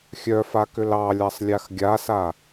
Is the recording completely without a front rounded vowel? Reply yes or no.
no